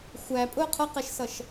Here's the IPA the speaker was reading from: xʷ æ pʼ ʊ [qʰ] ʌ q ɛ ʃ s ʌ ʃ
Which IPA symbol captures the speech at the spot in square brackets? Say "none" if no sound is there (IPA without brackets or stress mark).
qʰ